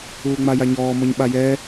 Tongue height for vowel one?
high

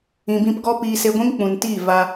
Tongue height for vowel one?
high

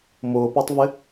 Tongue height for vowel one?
high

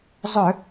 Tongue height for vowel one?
mid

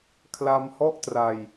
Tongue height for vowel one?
low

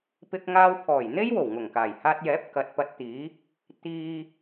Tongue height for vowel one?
high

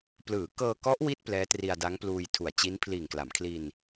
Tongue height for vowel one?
high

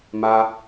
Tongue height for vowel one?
low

